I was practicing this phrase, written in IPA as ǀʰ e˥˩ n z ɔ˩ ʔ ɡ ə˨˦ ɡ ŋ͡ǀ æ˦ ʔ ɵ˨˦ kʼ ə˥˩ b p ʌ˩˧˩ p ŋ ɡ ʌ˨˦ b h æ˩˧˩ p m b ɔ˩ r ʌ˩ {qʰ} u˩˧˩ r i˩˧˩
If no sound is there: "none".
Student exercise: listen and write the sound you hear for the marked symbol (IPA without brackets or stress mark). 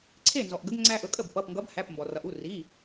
ʔ